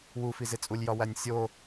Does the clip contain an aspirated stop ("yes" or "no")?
no